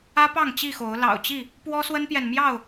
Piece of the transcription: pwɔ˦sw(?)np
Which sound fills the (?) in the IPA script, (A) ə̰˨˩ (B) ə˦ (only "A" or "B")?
B